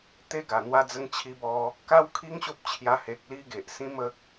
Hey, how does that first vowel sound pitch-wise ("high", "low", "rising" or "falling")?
high